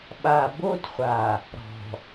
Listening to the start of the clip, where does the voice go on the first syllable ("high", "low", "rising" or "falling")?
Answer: low